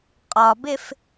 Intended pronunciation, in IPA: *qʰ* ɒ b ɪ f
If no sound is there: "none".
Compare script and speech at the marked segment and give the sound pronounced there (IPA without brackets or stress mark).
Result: qʼ